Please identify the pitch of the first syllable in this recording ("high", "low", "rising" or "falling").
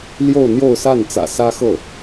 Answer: falling